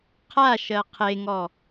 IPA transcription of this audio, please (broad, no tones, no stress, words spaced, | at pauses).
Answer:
qʰa ʃɜqʰeŋɔ